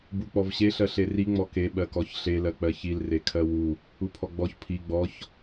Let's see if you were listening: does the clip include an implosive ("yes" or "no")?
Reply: yes